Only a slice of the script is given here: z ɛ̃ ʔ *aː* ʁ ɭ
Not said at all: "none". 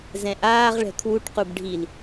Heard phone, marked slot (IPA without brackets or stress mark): aː